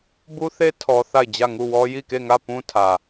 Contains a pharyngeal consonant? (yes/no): no